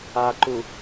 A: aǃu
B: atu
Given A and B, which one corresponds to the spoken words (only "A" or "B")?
A